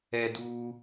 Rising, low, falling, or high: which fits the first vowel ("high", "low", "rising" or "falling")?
high